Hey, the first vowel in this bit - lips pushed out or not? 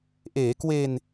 no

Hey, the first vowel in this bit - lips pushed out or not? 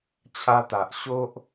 no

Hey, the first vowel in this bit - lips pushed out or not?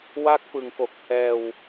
no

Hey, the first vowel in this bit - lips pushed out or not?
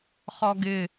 yes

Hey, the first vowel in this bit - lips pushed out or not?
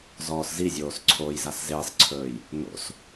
yes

